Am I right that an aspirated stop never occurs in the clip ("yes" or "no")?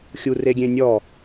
yes